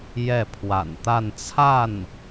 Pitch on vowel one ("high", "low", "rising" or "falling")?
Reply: falling